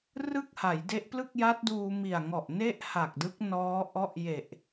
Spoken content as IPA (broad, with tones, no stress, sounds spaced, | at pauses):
r ɯ˥˩ k̚ h a˩˦ j d e˦˥ ʔ p l ɯ˥˩ k̚ j a˦˥ t̚ d uː˧ m i˨˩ a̯ ŋ ɔ˨˩ ʔ n e˥˩ ʔ h a˨˩ k̚ d ɯ˦˥ k̚ n ɔː˦˥ ʔ ɔ˦˥ ʔ j e˨˩ ʔ